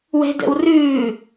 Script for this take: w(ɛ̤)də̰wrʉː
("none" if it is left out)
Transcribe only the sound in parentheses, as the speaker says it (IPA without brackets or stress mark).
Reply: ɛ̤